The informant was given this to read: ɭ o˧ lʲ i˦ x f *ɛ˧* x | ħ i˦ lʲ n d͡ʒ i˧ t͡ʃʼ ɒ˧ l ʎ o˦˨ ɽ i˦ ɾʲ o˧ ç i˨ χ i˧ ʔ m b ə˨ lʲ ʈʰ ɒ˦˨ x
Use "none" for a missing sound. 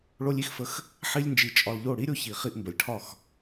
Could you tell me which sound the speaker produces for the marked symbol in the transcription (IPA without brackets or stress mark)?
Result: ə˧